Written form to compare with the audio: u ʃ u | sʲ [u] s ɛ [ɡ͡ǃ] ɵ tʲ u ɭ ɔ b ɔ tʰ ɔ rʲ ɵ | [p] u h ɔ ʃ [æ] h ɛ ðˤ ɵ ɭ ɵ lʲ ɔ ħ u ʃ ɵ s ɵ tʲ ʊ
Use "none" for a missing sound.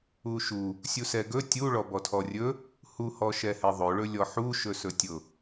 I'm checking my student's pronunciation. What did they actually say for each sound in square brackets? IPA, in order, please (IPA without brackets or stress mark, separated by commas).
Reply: u, ɡ, h, ɛ